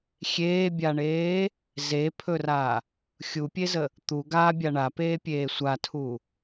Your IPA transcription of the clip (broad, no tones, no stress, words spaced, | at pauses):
xʲeːbʲaɳeː | zepʰɵra | xʲupʲezə | t̪u ɡabʲa ɳapeːpʲeː sʷatʰu